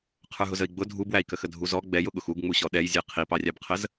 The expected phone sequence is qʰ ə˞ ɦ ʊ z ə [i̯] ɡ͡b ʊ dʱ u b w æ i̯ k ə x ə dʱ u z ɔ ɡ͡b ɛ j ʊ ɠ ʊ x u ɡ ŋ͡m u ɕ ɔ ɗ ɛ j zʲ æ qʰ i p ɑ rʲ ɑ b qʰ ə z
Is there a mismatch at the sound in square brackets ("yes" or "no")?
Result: no